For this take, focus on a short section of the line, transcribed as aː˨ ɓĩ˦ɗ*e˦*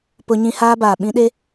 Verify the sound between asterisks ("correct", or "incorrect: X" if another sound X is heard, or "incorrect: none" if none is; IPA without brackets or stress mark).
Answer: correct